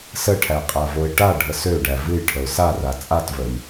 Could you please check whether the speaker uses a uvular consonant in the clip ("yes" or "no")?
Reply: yes